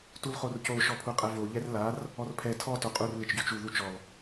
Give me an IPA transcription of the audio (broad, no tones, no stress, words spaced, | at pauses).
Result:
tulχorco ʃɔpʰuqʼɛvo ʎɛrlar | ɔrpʰɛ tʰɔ toqʼur lɪt͡ʃɟot͡ʃu ðut͡ʃɔl